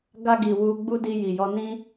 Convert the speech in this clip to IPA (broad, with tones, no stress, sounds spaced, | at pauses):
ɡ a˧ ɡ i˨ w u˧ ɡ͡b u˦ d i˧ j i˨ j ɔ˧ n ĩ˧